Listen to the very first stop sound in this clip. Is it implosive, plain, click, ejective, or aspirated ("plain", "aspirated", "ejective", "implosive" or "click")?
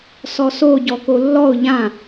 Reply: plain